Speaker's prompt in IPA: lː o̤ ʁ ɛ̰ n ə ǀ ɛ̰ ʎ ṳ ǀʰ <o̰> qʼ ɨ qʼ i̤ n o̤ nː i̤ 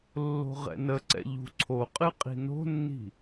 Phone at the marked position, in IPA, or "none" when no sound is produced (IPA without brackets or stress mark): o